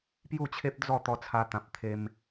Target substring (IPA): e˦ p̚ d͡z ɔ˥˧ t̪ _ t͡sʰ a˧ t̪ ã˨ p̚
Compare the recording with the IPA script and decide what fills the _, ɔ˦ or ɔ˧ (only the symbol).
ɔ˧